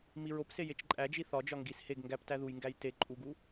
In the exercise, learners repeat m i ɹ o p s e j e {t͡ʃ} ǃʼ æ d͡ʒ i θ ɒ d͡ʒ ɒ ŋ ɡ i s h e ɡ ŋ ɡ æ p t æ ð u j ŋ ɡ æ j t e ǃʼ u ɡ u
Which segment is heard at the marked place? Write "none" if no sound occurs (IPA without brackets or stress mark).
t͡ʃ